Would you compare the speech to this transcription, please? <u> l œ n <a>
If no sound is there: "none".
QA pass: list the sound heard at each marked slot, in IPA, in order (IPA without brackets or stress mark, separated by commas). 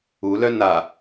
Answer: u, a